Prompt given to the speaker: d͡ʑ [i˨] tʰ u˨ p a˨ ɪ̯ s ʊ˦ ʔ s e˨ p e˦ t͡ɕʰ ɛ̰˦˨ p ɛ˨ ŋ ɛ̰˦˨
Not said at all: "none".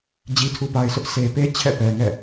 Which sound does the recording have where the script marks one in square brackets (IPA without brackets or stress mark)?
i˨